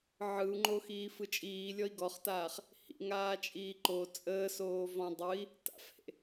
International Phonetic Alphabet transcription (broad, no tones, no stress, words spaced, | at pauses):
ʕɯu̯ŋ͡ǃoxiː fɯt͡ʃʼiːlʲɔi̯ ɡɔχtaːχ | hḭŋ aːt͡ʃʼiːǃo t͡sʼəːsoː vɔ̃ dˤɯi̯ | ta̰fhḛ